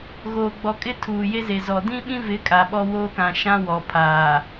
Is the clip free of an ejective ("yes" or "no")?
no